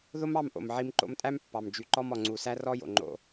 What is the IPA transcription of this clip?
ðo˦mɑ˦˨m ʔo̰˨mʕi˧m ǃo̰˧mtʼæ˦m pːɑ˨m d͡ʒy˨ ǃɔ˧m ɔ˨ŋ͡ǀu˨sæ˦ rɔ˦jo̰˨ŋ͡ǃo̰˧

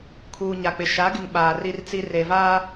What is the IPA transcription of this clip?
kʰuː˨ɲa˨k͡pɪ˨ ʃa˨˦ɡɪ˨ŋ ɓaː˨ri˦rt͡si˦ reː˨vaː˦

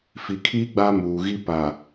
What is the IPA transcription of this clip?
fi˨kʰiː˦ ɡ͡ba˦muː˨ɣi˦ pa˨

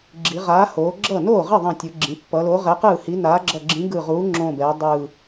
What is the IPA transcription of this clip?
ɡ͡ǁi˩˧ʁaː˨˥hoː˩˧ ɡ͡ǁʌ˥˩ noː˥˩ʁi˥˩ ðˤĩ˧˩tʲɯ˩˧ɡ͡ǁĩ˩˧ pːʌ˩˧lo˨˥ʁɛ˨˥ qɯː˥˩hi˨˥ naː˨˥ɡ͡ǁʌ˧˩ɡ͡ǁĩ˨˥ ɡɯ˧˩ʁuː˨˥ ŋ͡ǁõ˧˩bɛː˩˧ dˤɯː˧˩

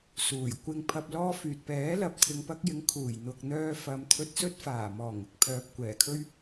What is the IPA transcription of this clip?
suː˨˩jkʷɪ˧ŋ pʰɐ˧p̚lɔː˥fyː˨t̚ pɛː˨˥lɐ˨p̚t̪ʰɪ˨ŋ pɐ˧k̚jɪ˨˥ŋ kʰuː˨˩jn̪ʊ˨k̚ n̪œː˧fɐ˨˧mt̪ʰɵ˧t̚sɵ˥t̚ faː˨˩mɔː˨˩ŋɪ˥k̚pʰœː˨p̚ kʷɛː˨˩kʰɵ˥ɥ

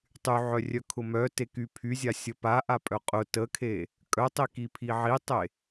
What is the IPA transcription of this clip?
tˤyʕœrʲœkʰʊ mœteky pʰyzʲasʲə paʔapʼœ qʼʊ təkʰe | kʼœtˤikipʰi ʕitˤe

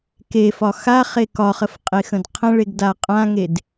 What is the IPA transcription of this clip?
kefɒ xaχe kɒχəfqʼexə̃d qʰə̃ɭeɡda qʼãŋed

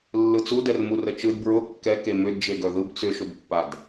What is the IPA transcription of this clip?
lːɯt͡sudɛrmu rət͡ʃɯd bɹʊ kːɛ kemʏdd͡ʒe ɡœðɯb t͡sʏʃʊbpːad

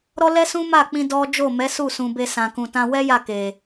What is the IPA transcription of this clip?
ɾɔ˦lɛ˦sũ˦ ma˦˨k͡pĩ˧ dɔ˦ d͡ʒo˦˨mɛ˨˦ su˦˨sũ˨be˧ sã˨kũ˨tã˧ wɛ˦ ja˦˨ke˨

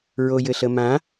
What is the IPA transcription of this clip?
ɹojɘɬəmã

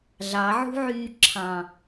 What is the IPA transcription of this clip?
ɮɑʕṳʕyː ǁʰɑ̃

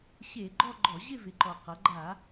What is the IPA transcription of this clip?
ɕe˧˩˧ɡ͡ǃɔ˥˧ ɡ͡ǃɔ˧˩˧ʑɪ˥˧vɪ˩˥ǃɔ˨˩ qʌ˩˧ɡ͡ǃa˧˩˧

